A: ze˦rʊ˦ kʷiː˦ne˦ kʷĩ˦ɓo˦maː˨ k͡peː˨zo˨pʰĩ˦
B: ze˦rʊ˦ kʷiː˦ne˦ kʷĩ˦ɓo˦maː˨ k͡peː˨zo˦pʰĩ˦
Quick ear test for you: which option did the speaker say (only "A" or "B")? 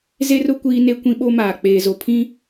A